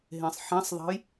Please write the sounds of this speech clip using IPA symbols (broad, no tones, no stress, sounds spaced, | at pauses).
ɦ ẽ sˤ ħ ɛ̃ sˤ ðˤ ɛ̤ j